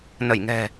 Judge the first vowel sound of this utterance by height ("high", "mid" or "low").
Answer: mid